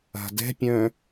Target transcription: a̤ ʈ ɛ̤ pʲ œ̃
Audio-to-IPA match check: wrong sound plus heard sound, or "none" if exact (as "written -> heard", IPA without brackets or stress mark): ʈ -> d